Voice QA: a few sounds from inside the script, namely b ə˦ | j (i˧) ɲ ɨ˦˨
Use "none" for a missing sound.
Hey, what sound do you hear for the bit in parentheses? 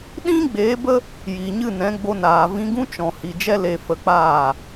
i˨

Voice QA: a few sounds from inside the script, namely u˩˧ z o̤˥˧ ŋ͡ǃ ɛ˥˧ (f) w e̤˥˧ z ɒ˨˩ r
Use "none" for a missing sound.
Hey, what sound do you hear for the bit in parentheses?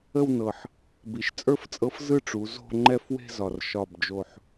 f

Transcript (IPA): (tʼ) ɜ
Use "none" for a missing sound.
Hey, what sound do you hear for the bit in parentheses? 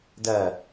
d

